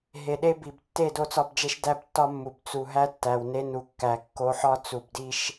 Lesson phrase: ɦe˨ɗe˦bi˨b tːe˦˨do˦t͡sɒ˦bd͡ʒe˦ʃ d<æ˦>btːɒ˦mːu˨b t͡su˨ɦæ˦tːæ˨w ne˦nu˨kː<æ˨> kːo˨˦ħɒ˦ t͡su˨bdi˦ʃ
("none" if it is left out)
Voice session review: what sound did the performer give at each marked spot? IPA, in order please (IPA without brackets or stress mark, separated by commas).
æ˦, æ˨